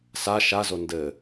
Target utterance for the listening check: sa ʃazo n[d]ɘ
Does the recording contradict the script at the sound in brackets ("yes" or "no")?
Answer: no